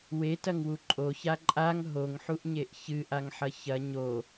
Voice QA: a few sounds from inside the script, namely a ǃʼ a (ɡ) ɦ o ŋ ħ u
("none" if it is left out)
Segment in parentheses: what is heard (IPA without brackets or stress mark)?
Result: ŋ